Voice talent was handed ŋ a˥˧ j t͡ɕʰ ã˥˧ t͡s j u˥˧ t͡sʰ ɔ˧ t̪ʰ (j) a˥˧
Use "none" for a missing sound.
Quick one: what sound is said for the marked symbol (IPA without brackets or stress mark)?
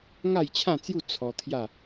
j